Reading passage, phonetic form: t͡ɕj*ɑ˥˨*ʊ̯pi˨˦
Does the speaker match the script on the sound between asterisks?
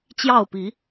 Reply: yes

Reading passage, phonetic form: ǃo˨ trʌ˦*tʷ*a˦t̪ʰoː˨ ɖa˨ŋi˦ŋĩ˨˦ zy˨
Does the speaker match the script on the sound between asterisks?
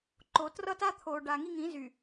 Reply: no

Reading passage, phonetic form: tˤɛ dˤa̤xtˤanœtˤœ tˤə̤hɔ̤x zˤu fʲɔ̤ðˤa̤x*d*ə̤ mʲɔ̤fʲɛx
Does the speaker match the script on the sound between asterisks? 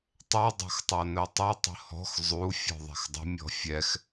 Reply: no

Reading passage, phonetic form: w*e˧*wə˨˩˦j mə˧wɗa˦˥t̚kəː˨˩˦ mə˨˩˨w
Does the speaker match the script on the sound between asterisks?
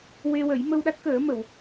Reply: yes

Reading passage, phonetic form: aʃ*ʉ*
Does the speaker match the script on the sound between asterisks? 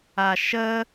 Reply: no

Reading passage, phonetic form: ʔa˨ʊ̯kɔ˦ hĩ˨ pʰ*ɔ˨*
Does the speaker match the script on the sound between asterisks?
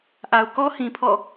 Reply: no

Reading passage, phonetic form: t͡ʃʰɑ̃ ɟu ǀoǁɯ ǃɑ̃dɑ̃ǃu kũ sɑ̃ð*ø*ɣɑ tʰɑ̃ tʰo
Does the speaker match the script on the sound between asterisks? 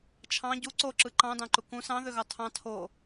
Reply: yes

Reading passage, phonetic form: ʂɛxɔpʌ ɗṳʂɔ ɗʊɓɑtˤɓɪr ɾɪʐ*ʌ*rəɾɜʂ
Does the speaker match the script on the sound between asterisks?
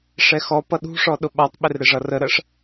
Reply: yes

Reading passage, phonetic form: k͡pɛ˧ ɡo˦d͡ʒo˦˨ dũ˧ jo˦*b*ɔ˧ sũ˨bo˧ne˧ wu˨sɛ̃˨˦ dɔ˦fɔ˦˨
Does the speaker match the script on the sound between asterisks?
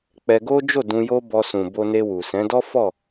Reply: yes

